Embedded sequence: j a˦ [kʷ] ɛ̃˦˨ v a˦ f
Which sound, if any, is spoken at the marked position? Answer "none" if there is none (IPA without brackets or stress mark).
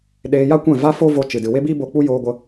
kʷ